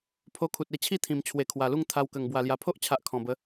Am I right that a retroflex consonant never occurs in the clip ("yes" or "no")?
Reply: yes